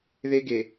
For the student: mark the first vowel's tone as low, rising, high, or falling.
high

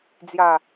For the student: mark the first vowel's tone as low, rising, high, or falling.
low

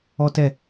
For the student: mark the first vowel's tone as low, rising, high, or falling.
high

